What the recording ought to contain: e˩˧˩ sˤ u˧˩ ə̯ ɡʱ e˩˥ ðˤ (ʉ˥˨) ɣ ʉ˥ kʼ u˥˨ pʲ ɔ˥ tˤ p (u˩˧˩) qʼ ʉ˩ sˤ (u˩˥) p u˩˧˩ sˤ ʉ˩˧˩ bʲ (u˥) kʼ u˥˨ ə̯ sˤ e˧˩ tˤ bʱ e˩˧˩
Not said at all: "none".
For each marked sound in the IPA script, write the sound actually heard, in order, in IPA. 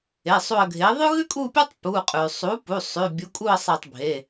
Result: ʉ˥, u˩˧˩, u˩˥, u˩˥

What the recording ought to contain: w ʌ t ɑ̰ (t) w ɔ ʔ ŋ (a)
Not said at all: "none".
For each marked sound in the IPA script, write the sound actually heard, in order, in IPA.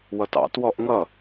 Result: t, ʌ

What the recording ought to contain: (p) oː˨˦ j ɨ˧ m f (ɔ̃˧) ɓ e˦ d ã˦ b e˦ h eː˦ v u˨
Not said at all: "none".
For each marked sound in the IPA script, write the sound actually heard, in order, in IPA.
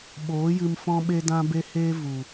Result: ɓ, ɔ̃˦

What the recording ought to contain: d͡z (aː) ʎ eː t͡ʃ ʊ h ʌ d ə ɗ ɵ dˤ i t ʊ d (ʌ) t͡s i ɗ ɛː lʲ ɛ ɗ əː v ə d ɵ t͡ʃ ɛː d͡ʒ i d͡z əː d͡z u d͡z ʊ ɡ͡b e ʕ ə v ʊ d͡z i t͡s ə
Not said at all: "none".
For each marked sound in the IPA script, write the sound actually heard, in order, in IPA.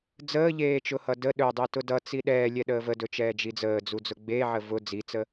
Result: əː, ʌ

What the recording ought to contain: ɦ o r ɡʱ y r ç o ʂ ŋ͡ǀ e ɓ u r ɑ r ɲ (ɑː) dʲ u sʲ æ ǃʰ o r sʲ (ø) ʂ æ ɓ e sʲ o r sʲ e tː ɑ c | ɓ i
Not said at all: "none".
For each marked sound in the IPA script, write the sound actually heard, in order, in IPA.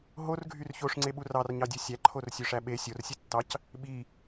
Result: ɑ, ø

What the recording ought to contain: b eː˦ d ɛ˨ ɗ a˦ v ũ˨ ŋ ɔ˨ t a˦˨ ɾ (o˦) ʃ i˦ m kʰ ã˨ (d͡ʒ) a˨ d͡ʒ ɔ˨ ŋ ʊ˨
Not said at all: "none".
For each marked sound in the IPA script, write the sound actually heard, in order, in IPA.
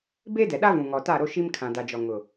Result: o˦, d

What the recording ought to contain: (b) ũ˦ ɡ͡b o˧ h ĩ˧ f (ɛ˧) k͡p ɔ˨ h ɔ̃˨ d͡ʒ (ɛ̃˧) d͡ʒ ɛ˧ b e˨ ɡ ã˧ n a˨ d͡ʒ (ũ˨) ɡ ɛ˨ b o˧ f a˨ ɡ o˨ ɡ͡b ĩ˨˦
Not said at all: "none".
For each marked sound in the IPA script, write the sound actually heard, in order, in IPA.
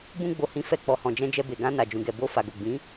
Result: b, ɛ˧, ɛ̃˧, ũ˨

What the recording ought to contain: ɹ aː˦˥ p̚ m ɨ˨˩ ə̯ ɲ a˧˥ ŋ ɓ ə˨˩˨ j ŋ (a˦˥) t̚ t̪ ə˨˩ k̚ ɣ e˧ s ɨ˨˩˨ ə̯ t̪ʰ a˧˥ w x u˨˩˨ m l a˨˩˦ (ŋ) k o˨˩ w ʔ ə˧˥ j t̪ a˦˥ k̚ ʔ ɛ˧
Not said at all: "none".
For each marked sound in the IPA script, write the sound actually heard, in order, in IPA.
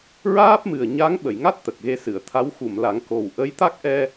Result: a˦˥, ŋ

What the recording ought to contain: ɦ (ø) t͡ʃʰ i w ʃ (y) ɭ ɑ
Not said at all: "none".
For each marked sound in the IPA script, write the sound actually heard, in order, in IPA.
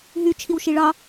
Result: y, i

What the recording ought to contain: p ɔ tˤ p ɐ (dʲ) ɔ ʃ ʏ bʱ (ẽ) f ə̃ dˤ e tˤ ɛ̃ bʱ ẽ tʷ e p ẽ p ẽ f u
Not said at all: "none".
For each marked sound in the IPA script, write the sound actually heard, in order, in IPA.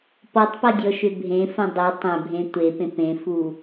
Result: dʲ, ẽ

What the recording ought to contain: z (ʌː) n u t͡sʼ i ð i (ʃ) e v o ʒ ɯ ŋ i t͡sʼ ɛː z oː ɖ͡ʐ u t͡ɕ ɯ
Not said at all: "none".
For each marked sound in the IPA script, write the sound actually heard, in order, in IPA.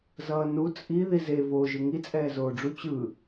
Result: ʌː, z

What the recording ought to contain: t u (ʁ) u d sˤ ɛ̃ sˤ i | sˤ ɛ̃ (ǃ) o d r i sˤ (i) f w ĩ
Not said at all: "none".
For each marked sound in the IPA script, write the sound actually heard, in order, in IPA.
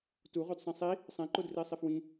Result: ʁ, ǃ, i

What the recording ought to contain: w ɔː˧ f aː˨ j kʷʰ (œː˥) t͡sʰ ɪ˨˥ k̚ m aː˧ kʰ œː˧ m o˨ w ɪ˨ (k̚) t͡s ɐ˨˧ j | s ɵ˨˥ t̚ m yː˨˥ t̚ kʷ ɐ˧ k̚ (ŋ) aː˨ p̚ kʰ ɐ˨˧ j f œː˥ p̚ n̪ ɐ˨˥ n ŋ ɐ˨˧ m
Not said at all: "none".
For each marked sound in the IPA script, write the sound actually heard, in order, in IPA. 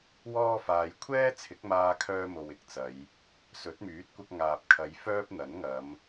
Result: ɛː˥, k̚, ŋ

